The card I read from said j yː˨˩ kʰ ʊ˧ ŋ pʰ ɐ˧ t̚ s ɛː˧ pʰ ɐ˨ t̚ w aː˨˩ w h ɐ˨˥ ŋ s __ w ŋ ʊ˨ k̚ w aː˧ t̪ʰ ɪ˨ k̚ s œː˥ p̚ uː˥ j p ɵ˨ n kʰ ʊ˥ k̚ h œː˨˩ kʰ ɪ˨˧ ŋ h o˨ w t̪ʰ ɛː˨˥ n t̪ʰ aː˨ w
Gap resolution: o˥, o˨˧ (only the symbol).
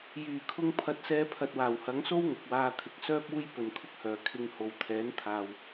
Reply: o˥